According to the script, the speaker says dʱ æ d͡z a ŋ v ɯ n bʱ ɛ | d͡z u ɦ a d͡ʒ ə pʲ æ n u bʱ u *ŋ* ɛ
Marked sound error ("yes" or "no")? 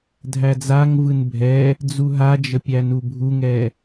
no